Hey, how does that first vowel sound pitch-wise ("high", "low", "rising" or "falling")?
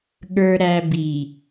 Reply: low